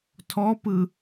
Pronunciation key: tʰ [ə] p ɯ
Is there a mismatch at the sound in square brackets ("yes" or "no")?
yes